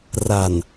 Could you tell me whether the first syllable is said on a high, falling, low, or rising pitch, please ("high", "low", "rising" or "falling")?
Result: low